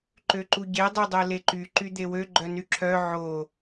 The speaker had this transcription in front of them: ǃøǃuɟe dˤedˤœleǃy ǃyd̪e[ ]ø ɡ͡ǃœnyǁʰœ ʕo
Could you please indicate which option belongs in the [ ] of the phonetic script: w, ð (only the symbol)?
w